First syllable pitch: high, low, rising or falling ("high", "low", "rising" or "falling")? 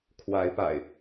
rising